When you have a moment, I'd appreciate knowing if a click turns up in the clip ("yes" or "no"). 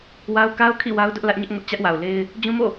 no